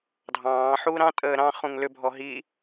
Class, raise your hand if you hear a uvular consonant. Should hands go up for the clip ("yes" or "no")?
yes